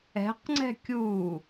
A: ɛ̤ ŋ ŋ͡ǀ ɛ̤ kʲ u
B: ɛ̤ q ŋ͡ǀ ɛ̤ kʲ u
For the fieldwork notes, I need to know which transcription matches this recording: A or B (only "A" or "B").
B